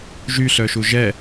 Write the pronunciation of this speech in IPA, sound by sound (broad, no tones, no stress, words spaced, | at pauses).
ʒyɬœʃu ʒɛ